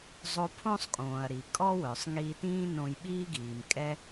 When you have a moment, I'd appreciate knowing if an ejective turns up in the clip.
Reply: yes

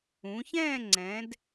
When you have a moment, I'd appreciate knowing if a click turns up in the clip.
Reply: yes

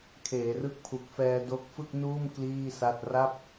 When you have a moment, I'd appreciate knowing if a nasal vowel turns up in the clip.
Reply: no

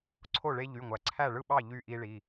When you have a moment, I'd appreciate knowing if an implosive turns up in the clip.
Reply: yes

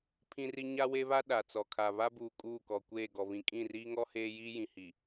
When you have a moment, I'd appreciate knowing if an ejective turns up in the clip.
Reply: yes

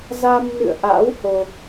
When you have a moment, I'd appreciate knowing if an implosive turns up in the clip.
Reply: no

